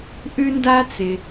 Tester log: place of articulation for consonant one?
glottal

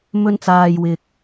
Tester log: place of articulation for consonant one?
labial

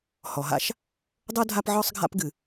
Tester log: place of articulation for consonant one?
glottal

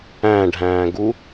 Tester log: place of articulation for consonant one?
retroflex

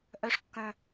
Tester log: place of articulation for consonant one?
glottal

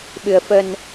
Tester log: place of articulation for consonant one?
labial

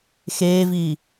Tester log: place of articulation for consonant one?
velar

